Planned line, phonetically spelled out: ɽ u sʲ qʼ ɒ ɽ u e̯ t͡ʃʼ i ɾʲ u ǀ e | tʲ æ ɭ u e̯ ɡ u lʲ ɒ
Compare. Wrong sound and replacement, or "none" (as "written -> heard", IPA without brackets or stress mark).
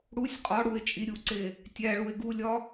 none